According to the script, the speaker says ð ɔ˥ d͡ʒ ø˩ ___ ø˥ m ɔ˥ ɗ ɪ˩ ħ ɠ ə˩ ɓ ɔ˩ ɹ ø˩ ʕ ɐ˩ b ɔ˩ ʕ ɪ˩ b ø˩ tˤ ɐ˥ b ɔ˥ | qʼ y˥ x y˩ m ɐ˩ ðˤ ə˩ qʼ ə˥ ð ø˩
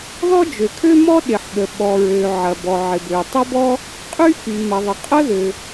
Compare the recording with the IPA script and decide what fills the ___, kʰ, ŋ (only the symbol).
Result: kʰ